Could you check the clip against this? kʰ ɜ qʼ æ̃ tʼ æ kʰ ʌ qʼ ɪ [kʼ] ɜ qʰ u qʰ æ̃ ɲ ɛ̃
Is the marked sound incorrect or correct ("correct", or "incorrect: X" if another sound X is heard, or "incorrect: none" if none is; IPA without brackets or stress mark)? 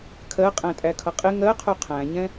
incorrect: ŋ